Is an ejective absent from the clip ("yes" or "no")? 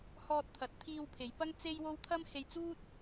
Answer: yes